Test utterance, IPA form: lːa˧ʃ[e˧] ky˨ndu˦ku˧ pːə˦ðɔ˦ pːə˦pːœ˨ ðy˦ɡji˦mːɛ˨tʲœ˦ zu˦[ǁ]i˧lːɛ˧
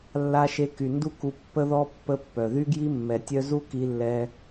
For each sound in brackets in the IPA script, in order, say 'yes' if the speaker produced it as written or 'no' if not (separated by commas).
yes, no